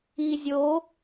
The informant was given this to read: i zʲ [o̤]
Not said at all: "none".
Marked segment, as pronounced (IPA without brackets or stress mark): o